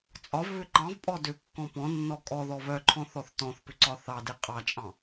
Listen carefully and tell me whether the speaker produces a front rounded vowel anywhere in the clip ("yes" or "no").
yes